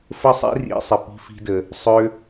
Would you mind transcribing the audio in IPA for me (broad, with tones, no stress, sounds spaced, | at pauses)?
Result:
f ə˦ sˤ ḭ˦ r ḭ˨˦ sˤ ɪ˨ p i̤˦ f i̤˦ d ə˧ | sˤ ø˦